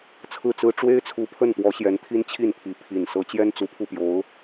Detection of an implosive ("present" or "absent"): absent